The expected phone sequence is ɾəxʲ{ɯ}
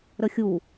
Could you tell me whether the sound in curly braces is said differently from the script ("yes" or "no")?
yes